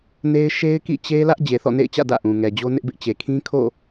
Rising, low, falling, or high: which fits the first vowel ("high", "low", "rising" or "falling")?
high